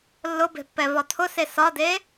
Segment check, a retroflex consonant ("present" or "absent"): absent